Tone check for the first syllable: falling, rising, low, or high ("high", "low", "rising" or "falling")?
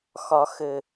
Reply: low